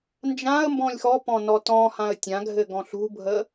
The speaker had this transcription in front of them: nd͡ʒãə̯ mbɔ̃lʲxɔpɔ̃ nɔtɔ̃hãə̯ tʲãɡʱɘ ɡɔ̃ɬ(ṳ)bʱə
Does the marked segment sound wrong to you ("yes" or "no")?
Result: no